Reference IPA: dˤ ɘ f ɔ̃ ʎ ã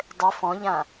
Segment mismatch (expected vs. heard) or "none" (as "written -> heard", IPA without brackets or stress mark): none